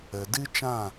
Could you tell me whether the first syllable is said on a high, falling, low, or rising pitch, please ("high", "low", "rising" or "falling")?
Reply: low